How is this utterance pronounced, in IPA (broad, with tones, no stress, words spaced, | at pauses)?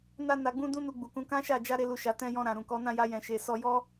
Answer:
na˧ na˧ɡ͡bũ˦ dũ˦nu˧ɡ͡bu˨kũ˨˦ kã˦ʃa˦˨ d͡ʒa˧ɾe˧lu˨ʃa˨ tɛ̃˧jɔ̃˧ ɾã˨ɾũ˨kɔ˨˦ nã˦˨ja˧jɛ̃˨ʃe˨ sɔ˧ jɔ˦